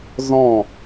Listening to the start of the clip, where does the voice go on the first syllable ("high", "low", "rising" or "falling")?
falling